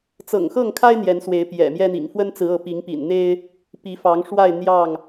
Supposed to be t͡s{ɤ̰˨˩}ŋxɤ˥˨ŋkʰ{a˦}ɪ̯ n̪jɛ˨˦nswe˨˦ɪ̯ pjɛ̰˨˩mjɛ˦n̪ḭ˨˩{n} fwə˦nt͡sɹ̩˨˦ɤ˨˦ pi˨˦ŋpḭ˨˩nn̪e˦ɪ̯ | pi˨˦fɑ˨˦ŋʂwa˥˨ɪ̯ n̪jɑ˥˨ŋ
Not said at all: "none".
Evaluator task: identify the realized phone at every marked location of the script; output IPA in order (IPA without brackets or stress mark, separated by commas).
ɤ̰˨˩, a˦, ŋ